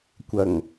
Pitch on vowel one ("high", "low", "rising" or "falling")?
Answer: low